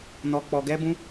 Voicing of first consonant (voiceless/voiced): voiced